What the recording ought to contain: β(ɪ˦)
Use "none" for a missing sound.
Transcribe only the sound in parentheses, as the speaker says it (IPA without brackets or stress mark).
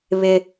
ɪ˦